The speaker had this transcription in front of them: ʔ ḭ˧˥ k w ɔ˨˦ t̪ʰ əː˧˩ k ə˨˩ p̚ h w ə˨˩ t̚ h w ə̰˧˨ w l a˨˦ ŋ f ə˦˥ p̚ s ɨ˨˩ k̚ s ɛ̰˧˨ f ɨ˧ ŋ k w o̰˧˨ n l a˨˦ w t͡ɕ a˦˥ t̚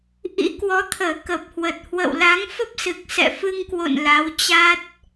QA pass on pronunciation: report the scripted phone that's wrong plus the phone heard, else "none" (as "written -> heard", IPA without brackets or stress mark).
none